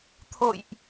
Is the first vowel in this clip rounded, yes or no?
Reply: yes